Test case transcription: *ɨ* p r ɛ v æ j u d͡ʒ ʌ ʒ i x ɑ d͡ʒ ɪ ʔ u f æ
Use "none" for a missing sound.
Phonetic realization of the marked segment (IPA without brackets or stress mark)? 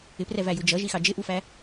ɪ